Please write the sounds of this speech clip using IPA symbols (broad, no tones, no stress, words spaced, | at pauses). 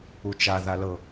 ut͡ʃa ðalɤ